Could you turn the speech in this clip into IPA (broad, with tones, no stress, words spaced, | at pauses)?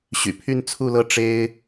ɕy̰˨˩pʰy˥˧n t͡sʰu˥˧lɤ˥˩ ʈ͡ʂe˥ɪ̯